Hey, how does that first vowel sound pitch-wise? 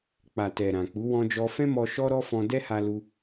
low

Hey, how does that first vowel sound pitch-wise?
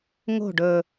falling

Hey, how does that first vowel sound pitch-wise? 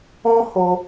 high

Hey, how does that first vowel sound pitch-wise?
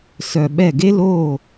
low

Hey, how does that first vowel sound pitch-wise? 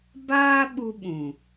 high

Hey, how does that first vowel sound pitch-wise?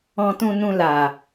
low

